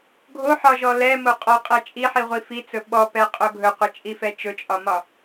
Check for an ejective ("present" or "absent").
present